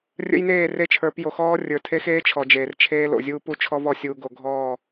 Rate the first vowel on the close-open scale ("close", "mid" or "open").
mid